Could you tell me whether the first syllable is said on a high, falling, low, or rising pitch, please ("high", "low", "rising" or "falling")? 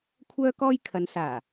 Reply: high